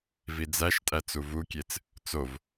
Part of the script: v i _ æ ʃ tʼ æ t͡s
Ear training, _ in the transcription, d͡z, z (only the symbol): d͡z